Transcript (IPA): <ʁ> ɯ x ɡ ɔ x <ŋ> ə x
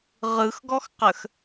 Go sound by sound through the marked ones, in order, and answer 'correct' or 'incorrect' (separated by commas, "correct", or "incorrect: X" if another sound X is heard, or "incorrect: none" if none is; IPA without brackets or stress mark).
correct, incorrect: q